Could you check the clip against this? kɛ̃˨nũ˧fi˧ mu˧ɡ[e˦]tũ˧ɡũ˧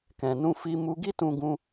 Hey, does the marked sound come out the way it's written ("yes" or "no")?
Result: no